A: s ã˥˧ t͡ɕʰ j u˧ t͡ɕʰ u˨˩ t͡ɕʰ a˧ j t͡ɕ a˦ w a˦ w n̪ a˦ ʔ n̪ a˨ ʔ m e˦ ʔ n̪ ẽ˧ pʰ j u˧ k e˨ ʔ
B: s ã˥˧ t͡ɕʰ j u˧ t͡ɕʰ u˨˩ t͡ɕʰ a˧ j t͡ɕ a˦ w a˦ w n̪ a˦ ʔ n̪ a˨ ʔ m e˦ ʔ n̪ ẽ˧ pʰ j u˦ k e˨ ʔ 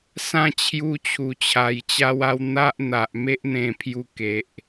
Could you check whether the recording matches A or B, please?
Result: A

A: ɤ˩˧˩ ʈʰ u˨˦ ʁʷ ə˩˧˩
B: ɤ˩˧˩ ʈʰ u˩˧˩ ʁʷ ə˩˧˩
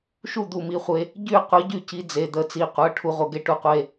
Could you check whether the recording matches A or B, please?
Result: A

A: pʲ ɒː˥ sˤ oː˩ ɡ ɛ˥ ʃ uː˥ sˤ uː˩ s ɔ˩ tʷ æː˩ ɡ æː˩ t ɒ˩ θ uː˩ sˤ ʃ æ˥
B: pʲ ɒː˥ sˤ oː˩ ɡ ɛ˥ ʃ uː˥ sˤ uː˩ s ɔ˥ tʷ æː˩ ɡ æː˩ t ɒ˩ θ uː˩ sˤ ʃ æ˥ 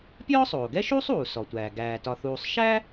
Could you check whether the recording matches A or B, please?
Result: A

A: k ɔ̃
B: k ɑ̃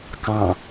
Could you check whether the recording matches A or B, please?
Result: B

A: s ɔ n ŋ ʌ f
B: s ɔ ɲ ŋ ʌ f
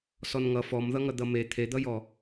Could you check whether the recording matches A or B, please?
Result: A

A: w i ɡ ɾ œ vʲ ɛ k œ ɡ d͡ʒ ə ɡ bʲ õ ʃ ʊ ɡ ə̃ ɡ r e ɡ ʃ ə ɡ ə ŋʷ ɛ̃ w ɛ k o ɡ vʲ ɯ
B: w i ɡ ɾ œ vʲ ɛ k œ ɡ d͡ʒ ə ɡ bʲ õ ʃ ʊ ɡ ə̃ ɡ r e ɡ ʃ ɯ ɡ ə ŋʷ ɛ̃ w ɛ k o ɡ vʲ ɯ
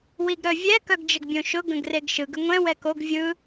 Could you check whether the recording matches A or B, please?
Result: B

